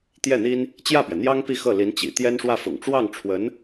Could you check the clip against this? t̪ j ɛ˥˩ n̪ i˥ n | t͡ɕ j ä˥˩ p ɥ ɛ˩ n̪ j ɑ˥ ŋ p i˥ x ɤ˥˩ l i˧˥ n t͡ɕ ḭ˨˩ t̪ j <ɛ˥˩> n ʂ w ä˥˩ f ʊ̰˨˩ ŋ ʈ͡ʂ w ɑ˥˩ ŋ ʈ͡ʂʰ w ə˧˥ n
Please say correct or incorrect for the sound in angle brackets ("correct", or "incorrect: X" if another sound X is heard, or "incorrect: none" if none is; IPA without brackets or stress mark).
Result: incorrect: ɛ˥